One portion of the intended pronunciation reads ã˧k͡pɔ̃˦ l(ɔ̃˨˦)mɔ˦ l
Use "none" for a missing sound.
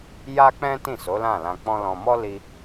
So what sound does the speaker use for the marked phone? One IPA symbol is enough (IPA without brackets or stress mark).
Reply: ɔ̃˧